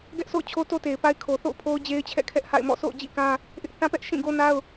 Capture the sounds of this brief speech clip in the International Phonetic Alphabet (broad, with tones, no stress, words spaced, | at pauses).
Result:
ɡɛ˦ʔ so̰˦˨ʊ̯t͡ɕʰo˦to˦ te˨ɪ̯pa˦ɪ̯ kʰo˨θo̰˦˨ʊ̯pʰo˦ʊ̯ d͡ʑe˦ɪ̯t͡ɕʰɛ̰˦˨ kʰɛ˦ʔha̰˦˨ɪ̯mɔ̰˦˨ so̰˦˨ʊ̯d͡ʑḭ˦˨kã˦ | ʔɪ˦ʔ θã˦pɛ˦ʔ ʃĩ˦˨ɡo˦na˦ʊ̯